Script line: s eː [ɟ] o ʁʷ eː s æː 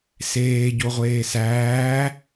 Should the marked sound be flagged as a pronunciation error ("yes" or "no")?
no